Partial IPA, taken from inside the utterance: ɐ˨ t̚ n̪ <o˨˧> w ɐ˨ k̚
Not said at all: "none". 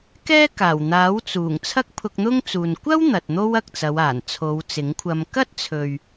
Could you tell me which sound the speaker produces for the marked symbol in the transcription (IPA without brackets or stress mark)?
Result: o˥